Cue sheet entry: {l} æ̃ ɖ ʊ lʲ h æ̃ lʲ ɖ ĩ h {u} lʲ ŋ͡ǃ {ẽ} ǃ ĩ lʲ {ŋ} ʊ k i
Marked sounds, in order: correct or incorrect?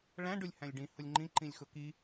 incorrect, incorrect, incorrect, incorrect

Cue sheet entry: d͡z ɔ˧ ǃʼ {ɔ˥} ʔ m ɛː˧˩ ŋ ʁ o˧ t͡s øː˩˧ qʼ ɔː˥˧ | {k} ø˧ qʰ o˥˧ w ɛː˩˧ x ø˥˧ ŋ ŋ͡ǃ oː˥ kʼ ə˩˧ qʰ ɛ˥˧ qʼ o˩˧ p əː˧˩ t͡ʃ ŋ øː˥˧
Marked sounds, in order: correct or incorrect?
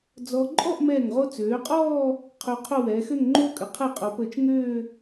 incorrect, incorrect

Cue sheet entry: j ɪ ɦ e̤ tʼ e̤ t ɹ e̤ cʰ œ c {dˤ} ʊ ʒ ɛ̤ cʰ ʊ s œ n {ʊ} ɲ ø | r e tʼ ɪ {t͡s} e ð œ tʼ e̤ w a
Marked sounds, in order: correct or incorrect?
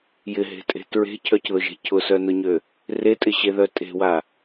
incorrect, correct, incorrect

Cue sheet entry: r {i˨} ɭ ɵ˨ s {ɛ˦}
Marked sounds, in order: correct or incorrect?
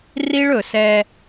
incorrect, correct

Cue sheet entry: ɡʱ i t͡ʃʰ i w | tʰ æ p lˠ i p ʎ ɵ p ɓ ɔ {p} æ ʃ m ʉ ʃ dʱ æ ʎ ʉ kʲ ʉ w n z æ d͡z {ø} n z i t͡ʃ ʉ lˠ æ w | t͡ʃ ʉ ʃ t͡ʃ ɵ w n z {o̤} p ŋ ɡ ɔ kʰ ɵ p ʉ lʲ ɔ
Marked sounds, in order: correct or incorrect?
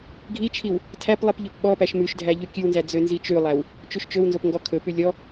correct, correct, incorrect

